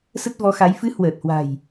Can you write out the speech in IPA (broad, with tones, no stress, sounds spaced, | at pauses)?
s ə˦˥ t̚ v ɔ˨˦ x a˨˦ j f ɨ˨˦ h w əː˨˩ t̚ h w a̤˨˩ j